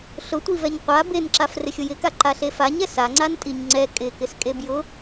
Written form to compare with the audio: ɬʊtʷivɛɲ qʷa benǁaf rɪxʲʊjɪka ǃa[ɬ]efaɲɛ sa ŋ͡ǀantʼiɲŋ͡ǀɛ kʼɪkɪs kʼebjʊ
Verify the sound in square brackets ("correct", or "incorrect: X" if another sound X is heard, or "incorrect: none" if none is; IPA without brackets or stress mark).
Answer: correct